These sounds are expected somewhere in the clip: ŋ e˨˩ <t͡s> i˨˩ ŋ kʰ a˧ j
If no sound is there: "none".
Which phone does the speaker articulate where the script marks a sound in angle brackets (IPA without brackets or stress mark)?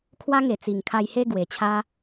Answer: t͡s